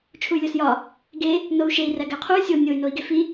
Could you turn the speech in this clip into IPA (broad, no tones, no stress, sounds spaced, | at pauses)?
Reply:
t͡ʃʰ u y̯ lʲ o s j ɒ | ɡ e | n o u̯ ʃ e i̯ r æ ɡ æ qʰ u y̯ sʲ o nʲ o y̯ n o i̯ ɡ e f i